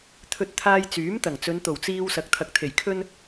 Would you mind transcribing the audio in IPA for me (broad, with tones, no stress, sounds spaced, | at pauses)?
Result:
t̪ʰ ɵ˧ t̚ t̪ʰ aː˧ j t͡s yː˨˥ m t̪ ɐ˨˩ ŋ t͡s ɵ˨˧ n t̪ o˨˩ w t͡s iː˧ w s ɐ˨˥ k̚ t̪ʰ ɐ˨˥ k̚ t̪ʰ e˨˩ j kʰ ɵ˥ n